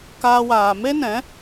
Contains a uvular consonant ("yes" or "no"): no